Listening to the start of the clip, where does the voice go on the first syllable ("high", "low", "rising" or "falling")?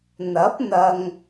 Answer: rising